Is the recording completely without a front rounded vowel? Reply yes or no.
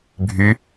no